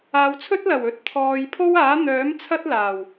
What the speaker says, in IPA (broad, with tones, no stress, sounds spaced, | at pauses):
aː˨ w t͡sʰ ɵ˥ t̚ l ɐ˨˩ w ɵ˨˥ t̚ t̪ʰ ɔː˨ j pʰ o˥ w aː˨˥ n̪ œː˨˥ m t͡sʰ ɐ˥ t̚ l aː˨˩ w